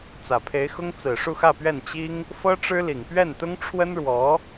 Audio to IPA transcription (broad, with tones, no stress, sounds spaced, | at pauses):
t͡s ä˨˩ pʰ e˧˥ ɪ̯ x ʊ˥ ŋ t͡s ɹ̩˨˩ ʂ u˥˧ x ä˥˧ p ɥ ɛ˥˩ n t͡ɕ i˥ ŋ | f ɤ˥ ʈ͡ʂ ɻ̩˥ l i˨˩ ŋ p ɥ ɛ˥˩ n t̪ ʊ˥ ŋ ʈ͡ʂʰ w ə˥ n ɻ w ɔ˧˥